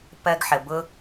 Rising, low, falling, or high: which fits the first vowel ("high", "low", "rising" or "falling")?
high